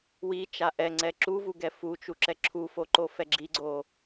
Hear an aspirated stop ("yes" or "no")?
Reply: yes